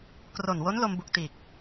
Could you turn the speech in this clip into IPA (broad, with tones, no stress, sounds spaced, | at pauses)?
k r o˨˩ n w o˦˥ n l o˧ m b u˨˩ k̚ t iː˨˩ k̚